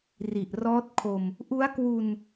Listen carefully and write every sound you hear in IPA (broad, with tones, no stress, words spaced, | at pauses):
ri˨˩ʔrɔː˦˥t̚kʰo˧m | ʔu˦˥a̯kwu˧n